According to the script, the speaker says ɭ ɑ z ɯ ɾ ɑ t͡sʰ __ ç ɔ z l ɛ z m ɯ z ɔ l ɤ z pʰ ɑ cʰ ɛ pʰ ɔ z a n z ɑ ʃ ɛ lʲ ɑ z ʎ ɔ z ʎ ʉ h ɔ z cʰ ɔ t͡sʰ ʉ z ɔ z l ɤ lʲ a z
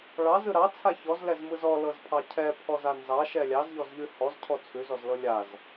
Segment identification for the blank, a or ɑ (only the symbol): a